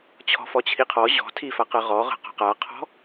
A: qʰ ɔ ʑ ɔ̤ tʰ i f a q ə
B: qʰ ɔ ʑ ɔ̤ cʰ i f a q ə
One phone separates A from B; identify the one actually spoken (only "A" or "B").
A